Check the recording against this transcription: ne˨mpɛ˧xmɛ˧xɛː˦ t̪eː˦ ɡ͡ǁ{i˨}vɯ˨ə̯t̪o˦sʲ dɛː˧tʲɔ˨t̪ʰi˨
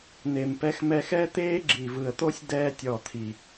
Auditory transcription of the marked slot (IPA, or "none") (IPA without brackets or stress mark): i˨